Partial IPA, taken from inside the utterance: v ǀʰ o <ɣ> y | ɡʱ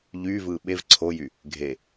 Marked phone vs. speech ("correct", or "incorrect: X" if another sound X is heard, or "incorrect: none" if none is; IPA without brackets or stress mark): incorrect: j